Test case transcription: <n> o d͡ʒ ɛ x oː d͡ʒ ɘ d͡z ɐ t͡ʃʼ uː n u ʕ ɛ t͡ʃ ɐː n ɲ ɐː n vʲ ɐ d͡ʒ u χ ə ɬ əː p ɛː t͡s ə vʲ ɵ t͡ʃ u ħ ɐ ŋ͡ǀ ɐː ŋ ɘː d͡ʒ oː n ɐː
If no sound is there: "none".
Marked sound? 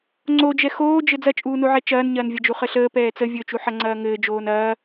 ŋ͡ǀ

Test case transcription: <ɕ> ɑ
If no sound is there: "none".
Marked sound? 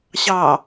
ɕ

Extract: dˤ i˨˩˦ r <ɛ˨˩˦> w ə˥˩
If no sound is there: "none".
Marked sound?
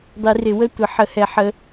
ɪ˨˩˦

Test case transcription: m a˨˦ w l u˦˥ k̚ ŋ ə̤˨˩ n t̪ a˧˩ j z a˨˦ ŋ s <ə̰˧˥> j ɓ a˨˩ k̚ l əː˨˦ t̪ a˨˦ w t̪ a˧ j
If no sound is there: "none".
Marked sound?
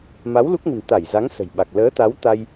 ə̤˨˩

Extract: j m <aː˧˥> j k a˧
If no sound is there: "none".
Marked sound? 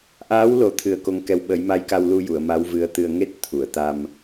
a˧˥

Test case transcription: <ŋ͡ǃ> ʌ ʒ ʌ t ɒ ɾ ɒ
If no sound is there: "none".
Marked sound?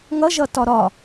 ŋ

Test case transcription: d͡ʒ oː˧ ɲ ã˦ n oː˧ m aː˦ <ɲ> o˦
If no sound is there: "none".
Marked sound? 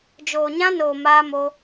m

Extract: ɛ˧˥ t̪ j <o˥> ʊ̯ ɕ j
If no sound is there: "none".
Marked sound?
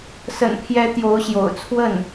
o˧˥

